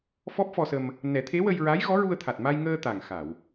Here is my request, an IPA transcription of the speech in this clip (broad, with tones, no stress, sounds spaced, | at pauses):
f ɔ˦˥ p̚ f ɔ˧ s ə˧ m | n ɛ˨˩˦ t̪ʰ e˧˥ w ə˧ j ɹ a˧˥ j ɣ ɔ˧˥ ɹ u˧ ə̯ t̪ʰ a˨˩ t̚ m a˧ j ŋ əː˧ t̪ a˨˩ ŋ x a˨˩˨ w